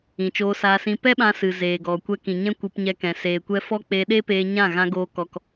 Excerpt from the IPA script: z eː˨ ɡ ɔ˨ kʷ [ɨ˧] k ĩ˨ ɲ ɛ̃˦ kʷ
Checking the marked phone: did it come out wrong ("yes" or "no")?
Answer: yes